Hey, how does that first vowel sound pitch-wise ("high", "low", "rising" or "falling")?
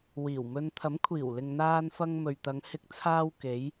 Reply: low